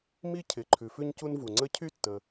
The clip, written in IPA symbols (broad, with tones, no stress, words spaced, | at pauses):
mi˥cʰɪ˩ ǃʰʉ˩fʉ˥ɲcu˥nvu˩ ŋ͡ǀə˥ cʰy˥tːə˩